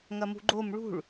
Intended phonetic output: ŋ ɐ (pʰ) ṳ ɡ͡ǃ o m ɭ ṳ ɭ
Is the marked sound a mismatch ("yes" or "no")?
yes